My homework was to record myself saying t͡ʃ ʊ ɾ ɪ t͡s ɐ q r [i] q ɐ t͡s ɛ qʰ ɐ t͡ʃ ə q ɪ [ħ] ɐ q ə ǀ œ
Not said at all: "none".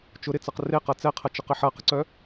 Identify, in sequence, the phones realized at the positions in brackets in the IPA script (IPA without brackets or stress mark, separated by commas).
e, ħ